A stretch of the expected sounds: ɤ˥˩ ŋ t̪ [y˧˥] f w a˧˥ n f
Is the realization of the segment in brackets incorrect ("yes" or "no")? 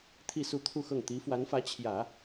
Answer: yes